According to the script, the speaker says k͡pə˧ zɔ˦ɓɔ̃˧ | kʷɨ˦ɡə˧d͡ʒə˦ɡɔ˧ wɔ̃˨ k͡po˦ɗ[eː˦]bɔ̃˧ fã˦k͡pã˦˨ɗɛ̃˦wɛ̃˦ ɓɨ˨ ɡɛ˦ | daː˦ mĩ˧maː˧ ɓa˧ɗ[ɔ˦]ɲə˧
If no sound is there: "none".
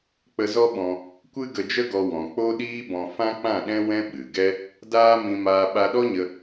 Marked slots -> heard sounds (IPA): iː˦, ɔ˦

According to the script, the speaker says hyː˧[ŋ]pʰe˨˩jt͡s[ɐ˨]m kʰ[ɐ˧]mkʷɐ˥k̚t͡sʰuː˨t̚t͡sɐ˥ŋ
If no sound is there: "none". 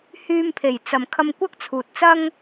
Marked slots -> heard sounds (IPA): m, ɐ˨, ɐ˧

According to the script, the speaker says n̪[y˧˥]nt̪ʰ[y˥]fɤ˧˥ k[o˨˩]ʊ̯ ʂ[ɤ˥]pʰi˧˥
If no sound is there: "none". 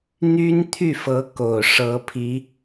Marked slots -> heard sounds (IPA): y˥, y˥˩, o˨˩, ɤ˧˥

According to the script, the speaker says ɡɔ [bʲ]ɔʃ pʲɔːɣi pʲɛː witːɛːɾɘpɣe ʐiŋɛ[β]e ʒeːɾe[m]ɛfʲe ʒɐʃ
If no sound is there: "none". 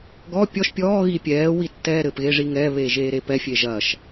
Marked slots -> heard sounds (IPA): pʲ, β, p

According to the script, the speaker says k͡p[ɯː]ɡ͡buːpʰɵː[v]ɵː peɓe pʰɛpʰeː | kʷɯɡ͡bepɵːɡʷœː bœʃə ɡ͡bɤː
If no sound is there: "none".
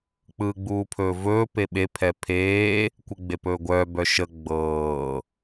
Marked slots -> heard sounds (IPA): ɯː, v

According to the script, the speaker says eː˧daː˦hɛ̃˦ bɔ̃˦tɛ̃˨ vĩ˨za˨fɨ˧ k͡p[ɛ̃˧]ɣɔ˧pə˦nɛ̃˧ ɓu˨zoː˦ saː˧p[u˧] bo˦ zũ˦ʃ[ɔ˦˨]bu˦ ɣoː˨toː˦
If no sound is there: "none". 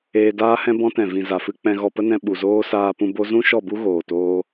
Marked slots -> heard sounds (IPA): ɛ̃˧, ũ˧, ɔ˦˨

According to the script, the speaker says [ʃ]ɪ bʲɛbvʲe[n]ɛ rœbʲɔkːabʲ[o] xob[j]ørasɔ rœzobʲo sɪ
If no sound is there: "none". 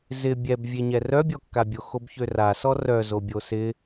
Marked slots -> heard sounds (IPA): z, ɲ, o, ç

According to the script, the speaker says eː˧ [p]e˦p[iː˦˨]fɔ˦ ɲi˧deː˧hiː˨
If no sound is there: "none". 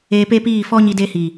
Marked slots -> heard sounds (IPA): p, iː˦˨

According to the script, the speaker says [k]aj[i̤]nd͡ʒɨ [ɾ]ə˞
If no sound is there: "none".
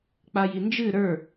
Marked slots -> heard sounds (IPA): k͡p, i, ɾ

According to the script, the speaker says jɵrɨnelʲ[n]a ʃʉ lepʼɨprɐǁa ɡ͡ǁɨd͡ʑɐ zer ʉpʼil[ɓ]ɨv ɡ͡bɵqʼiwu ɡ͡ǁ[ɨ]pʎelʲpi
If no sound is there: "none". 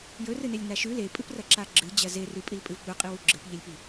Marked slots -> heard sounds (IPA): n, pʼ, ɨ

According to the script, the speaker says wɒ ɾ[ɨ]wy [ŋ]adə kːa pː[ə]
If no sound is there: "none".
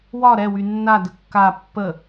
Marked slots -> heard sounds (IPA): ɛ, nː, ə

